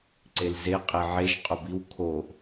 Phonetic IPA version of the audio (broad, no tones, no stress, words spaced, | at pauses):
ǀelze qʼeʕeʒ qʼobiw kʰoʔ